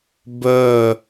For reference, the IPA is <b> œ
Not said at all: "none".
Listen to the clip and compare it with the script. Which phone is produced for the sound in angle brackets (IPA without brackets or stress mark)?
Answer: b